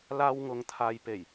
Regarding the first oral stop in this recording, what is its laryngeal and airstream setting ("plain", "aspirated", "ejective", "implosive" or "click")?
aspirated